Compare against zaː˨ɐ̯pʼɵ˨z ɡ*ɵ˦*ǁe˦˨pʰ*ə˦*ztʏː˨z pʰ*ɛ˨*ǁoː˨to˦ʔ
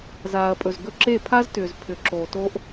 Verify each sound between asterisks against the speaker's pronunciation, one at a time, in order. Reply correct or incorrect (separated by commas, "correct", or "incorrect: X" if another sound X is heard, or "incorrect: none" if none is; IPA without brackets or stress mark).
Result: incorrect: ɵ˧, incorrect: a˦, incorrect: ʏ˨